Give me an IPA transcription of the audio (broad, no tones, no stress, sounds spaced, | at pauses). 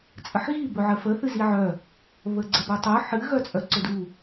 t͡sʼ ə ħ ɣ i b ɵ ʕ ə f ə θ ɨ z i ʕ œ | β ə ɡ͡ǀ ə b œ tˤ œ ħ ɨ ɣ œ t͡sʼ œ ǀ ʊ d u